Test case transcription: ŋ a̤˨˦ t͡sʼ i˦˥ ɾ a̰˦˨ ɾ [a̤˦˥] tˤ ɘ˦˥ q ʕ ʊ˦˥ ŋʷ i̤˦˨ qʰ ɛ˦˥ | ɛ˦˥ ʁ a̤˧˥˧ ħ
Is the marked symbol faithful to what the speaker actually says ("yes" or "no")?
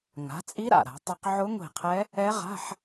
no